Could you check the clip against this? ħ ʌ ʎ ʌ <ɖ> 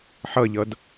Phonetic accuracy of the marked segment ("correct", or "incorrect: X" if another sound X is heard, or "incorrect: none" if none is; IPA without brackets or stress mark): incorrect: d